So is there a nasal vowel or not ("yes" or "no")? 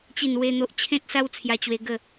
yes